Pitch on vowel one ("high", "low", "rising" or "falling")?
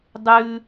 high